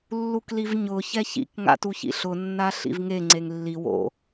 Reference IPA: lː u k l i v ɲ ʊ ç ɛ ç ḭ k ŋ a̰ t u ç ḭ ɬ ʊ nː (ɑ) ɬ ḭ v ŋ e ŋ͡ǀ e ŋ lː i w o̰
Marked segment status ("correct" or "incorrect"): incorrect